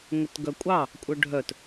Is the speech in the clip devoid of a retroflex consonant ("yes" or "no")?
no